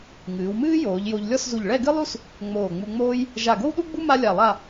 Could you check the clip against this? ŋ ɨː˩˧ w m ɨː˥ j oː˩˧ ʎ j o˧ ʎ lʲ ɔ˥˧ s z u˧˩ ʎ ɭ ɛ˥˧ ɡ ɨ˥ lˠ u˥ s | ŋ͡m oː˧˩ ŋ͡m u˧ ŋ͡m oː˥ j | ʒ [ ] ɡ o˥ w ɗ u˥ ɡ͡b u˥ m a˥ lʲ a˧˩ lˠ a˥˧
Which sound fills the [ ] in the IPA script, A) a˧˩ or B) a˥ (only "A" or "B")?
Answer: A